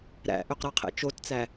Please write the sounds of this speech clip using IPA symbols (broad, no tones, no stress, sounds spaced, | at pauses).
ɾ æ̰ ʔ ø q ɾ ɑ qʰ ḛ t͡ʃ o t t͡s æ